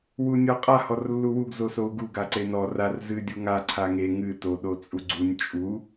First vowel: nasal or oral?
oral